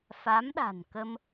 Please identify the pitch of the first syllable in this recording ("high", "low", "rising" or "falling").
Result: rising